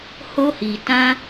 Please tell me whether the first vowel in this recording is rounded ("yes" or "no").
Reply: yes